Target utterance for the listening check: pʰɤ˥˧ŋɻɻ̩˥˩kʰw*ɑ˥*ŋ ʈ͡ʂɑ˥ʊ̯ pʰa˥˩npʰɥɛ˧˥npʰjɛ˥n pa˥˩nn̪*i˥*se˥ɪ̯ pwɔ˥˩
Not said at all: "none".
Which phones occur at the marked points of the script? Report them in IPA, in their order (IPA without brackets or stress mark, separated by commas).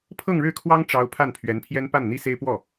ɑ˥, i˥